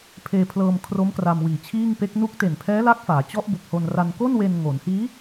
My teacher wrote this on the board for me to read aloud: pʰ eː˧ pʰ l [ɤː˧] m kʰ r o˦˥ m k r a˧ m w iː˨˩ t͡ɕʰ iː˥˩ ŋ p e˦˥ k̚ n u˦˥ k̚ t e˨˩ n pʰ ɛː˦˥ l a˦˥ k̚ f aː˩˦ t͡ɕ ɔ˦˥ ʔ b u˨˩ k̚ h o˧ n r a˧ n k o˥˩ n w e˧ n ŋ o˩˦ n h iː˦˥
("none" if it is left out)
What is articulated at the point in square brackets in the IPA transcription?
ɤː˧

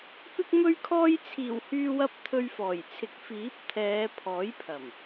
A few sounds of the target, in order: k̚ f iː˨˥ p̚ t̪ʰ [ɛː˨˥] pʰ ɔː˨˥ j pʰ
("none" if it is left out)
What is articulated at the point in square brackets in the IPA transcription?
ɛː˨˧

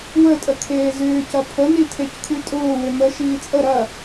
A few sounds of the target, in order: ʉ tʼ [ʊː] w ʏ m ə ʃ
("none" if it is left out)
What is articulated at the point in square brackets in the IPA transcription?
ʊː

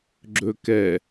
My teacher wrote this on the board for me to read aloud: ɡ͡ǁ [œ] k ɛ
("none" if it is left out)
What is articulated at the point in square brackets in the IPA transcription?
ɵ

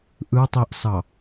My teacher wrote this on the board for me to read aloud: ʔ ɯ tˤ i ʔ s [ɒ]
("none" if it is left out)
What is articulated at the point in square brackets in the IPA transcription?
ɑ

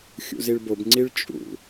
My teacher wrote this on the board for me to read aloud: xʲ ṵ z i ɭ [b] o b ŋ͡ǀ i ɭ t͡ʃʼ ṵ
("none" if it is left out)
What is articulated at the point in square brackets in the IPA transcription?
b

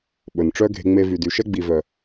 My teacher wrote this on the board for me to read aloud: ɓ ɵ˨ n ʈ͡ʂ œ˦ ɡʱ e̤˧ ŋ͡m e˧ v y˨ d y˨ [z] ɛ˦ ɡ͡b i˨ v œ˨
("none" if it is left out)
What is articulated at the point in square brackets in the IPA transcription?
ʃ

